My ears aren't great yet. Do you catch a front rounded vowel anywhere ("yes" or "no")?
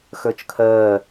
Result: yes